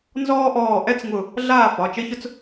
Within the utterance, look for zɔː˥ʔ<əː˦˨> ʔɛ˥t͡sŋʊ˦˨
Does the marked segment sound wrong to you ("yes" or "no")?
yes